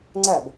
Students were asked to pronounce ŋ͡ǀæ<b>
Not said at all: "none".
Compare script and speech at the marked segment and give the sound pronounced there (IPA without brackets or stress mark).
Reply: b